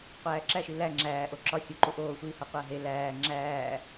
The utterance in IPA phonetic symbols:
qʷæːǁæʃi læ ŋ͡ǁæː ʔoǁɒ sʲuǃu ʔoːsʷiːhɒ qʷæɦe læː ŋ͡ǁæː

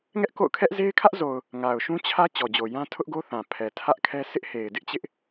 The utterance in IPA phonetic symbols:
ŋɛ˦ʔko̰˦˨ʊ̯kʰɛ˦ʔ ze˦ɪ̯kʰä˦ʔzo˨ʊ̯ | ŋa˨ʊ̯ʃũ˦ t͡ɕʰä˦ t͡ɕɔ˨d͡ʑo˨jã˦ tʰʊ˦ʔɡo˦θã˨ pʰɛ˨tʰä˦ʔkʰɛ˦ sʰɪ˦ʔhe˨ɪ̯dɪ˦ʔt͡ɕɪ˦ʔ

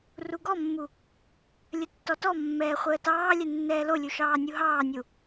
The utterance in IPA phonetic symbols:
ruɡɔmːu | lʲətːɔtɔmːɛː χʷəːtɑːlʲɛ nːɛːlolʲu ʃɑːnʲuɦɑːnʲu

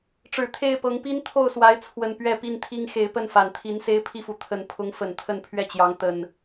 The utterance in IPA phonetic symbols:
ʈ͡ʂɻ̩˨˩t̪ʰe˥˨ɪ̯pɤ˨˦ŋ pi˦nt̪ʰo˥˨ʊ̯swa˨˦ɪ̯t͡sʰwə˨˩n pɥɛ˥˨pi˥˨nt̪ʰi˦ŋ xe˨˦ɪ̯pə˥˨nfa˨˩nt̪ʰi˨˦n se˦ɪ̯pʰi˥˨fu˩ t̪ʰə˨˦npʰʊ˨˦ŋ fə˨˩nt̪ʰə˥˨n pʰɥɛ˥˨t͡ɕjɑ˨˦ŋ t̪ə˨˩n

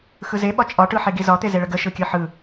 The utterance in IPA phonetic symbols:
xɯze ɓɒt͡ʃʼɒ ʈɯħeɡizɒ t̪ezeɭəɡə ʃɯkʲɯħɯ

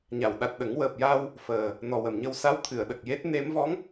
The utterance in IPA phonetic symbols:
ɲa˨˩˨wɗa˨˩t̚ɗə˨˩˦ŋ wəː˨˩p̚ja˧w | fəː˨˩ | nɔ˨˩wə˨˩mɲə˧w sa˧˥wt̪ʰɨ˨˩˨ə̯ ɗə˨˩k̚je˦˥t̚ ne˧˥m vɔ˧˥ŋ

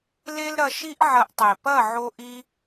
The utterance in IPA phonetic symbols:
le˦lɾɐ˧ʃi˦ʔ ʕɐ˧ʔtˤe˨ pɐ˦˨ʕo˧ ʔi˦

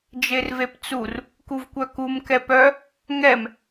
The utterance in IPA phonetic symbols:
d͡ʒervept͡sur | kuvkʷœkum kɛpœ | ŋɛm

